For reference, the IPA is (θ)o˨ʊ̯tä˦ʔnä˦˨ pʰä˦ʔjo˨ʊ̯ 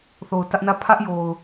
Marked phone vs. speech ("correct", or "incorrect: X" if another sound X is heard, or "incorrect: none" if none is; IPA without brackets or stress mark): correct